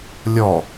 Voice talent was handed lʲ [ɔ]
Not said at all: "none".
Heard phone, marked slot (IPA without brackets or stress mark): ɔ